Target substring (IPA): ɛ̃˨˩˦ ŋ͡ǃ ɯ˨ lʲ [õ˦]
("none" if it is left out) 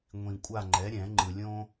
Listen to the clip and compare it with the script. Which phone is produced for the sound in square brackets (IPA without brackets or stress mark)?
õ˦